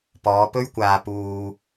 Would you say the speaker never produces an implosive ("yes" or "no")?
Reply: yes